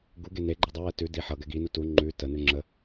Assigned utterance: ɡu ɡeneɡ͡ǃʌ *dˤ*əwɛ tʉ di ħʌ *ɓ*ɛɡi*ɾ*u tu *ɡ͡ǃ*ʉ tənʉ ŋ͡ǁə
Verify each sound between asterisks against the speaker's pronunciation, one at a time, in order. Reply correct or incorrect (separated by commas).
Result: correct, incorrect, incorrect, incorrect